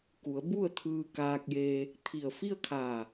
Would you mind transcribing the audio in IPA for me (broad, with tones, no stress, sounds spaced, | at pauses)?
k u˩˧ ə̯ b u˥˨ ə̯ t̪ʰ ɯː˧ k aː˧ k̚ j eː˧ | t̪ʰ i˧˩ ə̯ f i˥˨ ə̯ kʰ aː˧˩